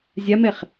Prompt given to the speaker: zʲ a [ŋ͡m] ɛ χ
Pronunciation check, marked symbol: incorrect: m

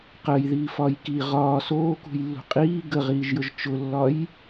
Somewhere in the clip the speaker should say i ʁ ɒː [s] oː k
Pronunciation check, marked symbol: correct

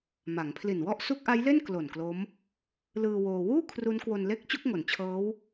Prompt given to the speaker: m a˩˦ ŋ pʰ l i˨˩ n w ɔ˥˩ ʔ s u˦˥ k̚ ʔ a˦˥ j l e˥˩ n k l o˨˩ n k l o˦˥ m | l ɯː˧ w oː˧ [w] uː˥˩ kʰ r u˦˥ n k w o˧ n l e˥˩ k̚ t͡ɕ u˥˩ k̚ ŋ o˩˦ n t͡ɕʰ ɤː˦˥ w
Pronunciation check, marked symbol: correct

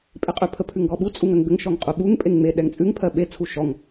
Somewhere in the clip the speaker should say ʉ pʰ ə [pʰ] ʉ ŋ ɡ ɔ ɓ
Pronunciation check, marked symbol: correct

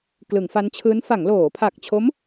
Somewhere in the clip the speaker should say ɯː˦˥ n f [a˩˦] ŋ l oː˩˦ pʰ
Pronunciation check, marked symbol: correct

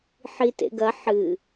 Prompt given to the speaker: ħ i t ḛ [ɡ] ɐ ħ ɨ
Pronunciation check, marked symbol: correct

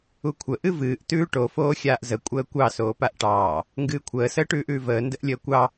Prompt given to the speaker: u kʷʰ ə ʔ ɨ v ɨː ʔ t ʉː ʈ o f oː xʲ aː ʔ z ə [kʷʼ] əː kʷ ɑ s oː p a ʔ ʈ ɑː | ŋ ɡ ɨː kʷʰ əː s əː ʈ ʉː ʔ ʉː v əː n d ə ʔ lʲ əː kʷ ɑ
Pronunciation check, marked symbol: correct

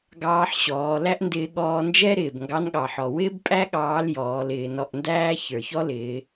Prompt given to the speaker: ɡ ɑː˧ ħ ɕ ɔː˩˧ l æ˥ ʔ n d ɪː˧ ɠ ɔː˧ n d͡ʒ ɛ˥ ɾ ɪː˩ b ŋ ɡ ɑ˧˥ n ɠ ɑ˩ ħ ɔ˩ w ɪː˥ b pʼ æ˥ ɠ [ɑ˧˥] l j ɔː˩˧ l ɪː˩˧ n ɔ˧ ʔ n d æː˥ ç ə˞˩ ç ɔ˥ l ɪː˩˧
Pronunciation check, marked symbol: incorrect: ɑː˧˥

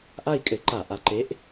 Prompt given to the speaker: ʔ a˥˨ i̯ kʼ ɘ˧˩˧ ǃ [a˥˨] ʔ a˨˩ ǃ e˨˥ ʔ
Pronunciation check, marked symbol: incorrect: a˧˩˧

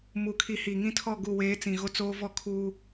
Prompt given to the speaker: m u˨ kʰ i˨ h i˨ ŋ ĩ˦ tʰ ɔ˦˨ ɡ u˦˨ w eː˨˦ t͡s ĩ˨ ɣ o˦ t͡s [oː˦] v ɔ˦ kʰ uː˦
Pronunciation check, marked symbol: correct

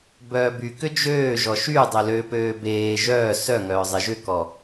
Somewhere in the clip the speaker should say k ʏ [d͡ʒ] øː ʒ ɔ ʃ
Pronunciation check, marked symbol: correct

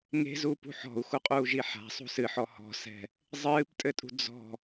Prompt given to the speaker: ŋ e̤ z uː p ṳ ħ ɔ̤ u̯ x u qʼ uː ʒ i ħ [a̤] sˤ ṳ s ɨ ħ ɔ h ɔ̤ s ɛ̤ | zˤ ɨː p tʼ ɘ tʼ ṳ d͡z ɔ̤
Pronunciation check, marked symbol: correct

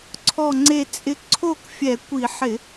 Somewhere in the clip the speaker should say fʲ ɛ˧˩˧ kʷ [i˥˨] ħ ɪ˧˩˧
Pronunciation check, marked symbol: incorrect: i˧˩˧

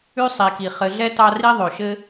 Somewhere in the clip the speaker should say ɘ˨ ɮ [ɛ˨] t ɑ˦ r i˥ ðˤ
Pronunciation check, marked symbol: incorrect: ɛ˥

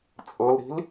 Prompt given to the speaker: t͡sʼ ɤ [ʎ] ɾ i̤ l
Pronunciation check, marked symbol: incorrect: l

